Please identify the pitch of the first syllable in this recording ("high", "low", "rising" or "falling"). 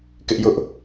high